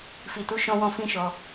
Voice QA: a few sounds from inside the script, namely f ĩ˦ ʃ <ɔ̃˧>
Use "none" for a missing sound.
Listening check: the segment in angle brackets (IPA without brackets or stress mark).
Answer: ɔ˧